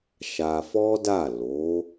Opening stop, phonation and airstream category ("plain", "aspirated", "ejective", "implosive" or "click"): plain